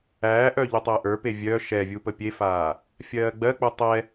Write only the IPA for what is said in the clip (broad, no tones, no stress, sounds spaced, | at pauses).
æː ʔ œ ʎ u tˤ əː ʔ ə˞ p e vʲ œ ʃ ɛ vʲ u p ə pʲ e f aː | fʲ ɜː ɡ͡b ɜ k͡p u tˤ ɛ